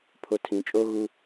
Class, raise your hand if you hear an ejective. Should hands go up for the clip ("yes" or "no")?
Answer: yes